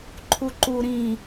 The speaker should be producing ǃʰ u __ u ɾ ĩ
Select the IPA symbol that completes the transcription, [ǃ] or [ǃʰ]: ǃ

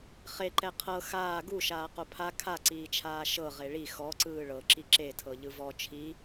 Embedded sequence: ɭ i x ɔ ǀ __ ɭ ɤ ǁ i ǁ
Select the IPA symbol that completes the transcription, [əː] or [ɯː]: ɯː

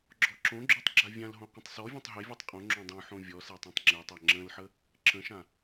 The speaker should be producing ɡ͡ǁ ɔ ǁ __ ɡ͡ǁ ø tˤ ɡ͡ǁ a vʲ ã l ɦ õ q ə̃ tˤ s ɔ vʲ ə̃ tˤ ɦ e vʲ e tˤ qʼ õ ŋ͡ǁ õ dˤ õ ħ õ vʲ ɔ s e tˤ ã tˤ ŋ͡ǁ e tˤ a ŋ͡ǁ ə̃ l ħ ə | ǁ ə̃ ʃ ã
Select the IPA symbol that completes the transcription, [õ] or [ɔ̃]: õ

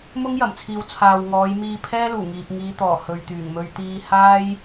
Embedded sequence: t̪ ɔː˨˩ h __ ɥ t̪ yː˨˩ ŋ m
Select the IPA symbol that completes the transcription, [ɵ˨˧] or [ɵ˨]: ɵ˨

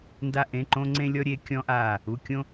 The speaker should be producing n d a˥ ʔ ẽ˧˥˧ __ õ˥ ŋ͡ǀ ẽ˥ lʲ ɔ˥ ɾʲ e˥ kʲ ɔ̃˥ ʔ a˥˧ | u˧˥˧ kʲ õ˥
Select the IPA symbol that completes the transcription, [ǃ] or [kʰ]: ǃ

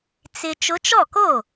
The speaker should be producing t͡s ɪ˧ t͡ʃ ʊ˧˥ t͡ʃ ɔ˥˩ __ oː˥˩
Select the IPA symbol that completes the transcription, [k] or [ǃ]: k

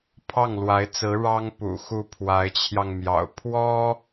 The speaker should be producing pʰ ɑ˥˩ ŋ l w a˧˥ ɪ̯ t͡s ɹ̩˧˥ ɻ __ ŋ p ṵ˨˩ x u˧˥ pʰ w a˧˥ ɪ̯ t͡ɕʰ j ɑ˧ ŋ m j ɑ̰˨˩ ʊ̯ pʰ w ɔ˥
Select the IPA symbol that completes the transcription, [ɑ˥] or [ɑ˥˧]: ɑ˥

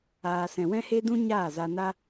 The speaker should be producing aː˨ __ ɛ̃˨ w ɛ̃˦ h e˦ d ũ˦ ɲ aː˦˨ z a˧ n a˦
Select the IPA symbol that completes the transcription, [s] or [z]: s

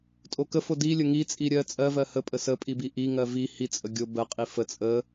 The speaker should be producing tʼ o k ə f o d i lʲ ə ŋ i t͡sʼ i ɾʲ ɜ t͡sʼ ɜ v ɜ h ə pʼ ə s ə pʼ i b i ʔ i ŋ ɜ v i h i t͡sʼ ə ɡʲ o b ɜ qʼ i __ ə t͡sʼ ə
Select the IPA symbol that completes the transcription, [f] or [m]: f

